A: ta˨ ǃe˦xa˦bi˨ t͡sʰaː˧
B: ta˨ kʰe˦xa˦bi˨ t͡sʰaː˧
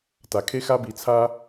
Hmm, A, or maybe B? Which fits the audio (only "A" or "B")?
B